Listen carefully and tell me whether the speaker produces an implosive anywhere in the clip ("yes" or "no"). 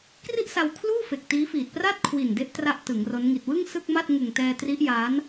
no